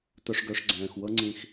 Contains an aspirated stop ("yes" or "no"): no